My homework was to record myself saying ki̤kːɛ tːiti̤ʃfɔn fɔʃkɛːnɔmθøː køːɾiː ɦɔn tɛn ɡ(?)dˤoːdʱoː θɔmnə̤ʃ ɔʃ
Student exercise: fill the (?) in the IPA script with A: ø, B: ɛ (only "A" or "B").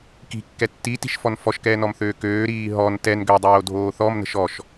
A